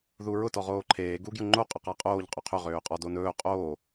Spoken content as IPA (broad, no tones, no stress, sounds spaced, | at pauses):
ð u ɹ ʊ t ɔ ʁ oː ǃʰ eː ɡ u ɡ j ʊ ŋ͡ǃ o qʼ ʊ q a qʼ oː ʎ qʼ ø qʰ ø ʁ øː qʼ ɔ d o n ɵː qʼ oː